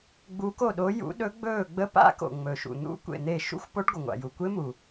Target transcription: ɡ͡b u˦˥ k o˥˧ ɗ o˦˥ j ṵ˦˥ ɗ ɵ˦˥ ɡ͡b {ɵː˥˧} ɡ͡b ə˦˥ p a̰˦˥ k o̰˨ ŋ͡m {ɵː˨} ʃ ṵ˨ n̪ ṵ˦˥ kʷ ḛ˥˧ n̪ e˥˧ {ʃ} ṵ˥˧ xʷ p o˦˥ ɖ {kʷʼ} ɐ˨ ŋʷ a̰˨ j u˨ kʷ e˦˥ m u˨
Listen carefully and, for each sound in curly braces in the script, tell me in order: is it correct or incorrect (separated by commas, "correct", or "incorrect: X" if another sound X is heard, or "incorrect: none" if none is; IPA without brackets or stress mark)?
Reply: correct, incorrect: ɵ˨, correct, incorrect: ɡʷ